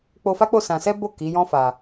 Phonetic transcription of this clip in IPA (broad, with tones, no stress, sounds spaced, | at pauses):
k͡p o˧ f a˦ k͡p o˦˨ s ã˧ s ɛ˦ b o˦˨ k i˨˦ j ɔ̃˦ f a˧